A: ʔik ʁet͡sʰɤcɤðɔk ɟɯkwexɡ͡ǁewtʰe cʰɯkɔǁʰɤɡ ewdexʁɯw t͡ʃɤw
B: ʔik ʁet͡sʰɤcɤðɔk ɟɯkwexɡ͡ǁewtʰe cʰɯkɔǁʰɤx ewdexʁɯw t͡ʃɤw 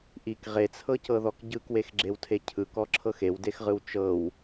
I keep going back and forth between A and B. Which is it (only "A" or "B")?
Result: B